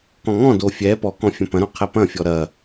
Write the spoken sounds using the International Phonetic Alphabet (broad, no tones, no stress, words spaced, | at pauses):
kɔ̃ŋɔ̃do fʲɛ pɔkɔ̃ fʲɐ̃pɐ̃ɾõ qʰɛpɐ̃fʲɔ ɾɐ